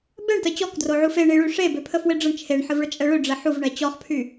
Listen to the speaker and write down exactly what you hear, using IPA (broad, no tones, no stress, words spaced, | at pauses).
bɛɳtə t͡ɕɔkdroʕu feɳiɭy ʂebøpʰəfwe ɖ͡ʐəɳ t͡ʃʰeɳħəvɭət͡ʃʼɛ ɭøɖ͡ʐɛ ħuvɳɛ t͡ɕɔχpʰy